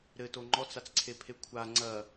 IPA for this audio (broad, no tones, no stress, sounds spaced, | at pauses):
ɾ ɘ t o ŋ͡ǃ ɔ t͡s a t͡s ǀʰ e pʰ e kʷʰ a ŋ͡ǀ ɐ